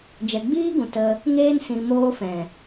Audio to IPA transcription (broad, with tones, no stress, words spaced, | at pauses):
d͡ʒɛ˨ɡ͡biː˦ɡũ˨ tə˧ | ŋeː˧nsĩ˨ moː˧fɛ̃˨